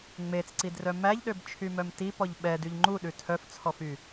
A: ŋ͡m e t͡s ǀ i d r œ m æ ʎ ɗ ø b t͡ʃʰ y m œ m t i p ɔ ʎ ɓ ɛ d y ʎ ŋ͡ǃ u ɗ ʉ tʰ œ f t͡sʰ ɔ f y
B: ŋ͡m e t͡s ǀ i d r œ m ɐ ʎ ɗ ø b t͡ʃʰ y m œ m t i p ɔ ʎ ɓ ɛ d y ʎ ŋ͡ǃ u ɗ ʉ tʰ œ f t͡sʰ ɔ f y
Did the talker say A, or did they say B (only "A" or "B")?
A